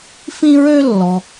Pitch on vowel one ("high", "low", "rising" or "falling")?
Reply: high